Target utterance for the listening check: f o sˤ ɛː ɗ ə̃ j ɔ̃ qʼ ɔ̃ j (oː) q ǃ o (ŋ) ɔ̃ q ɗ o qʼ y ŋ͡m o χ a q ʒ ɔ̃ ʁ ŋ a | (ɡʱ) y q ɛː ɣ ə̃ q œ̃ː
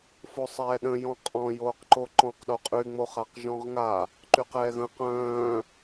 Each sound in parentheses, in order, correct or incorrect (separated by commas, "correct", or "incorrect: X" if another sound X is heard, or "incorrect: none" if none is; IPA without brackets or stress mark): correct, incorrect: ǃ, incorrect: ǃ